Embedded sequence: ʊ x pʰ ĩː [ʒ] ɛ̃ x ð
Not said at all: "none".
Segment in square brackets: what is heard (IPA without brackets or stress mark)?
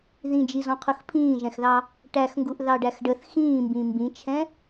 ʒ